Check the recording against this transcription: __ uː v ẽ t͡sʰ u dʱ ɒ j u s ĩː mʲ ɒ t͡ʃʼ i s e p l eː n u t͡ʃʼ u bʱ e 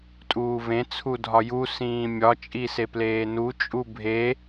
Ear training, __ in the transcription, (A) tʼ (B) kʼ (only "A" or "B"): A